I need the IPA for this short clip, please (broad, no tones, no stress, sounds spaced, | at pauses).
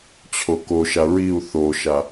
t͡ɕʰ o k o ʃ a ɹ i u̯ θ o ʃ a